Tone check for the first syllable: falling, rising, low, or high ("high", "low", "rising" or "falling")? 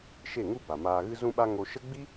falling